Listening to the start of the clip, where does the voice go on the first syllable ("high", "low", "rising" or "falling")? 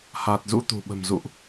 low